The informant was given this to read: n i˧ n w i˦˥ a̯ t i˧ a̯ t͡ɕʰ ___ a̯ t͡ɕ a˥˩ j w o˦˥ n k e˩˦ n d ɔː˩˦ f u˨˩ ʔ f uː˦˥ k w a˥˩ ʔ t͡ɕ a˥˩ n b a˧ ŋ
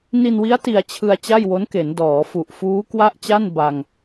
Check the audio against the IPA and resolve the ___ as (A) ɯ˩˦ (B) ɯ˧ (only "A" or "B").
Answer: B